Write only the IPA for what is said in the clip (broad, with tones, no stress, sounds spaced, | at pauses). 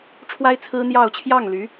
ʈ͡ʂʰ w a˥ ɪ̯ t͡sʰ ɹ̩˥ n̪ j ɑ˥˧ ʊ̯ t͡ɕʰ j ɑ˥˩ ŋ l y˧˥